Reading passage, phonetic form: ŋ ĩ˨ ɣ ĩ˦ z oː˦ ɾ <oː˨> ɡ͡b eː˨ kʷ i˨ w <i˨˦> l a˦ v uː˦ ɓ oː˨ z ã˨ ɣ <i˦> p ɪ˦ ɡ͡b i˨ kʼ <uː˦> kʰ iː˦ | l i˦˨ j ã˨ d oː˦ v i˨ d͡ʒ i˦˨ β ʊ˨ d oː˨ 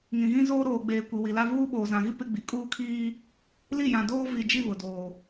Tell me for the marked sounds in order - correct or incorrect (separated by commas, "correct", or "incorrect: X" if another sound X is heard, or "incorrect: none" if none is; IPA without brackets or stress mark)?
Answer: correct, incorrect: i˨, correct, correct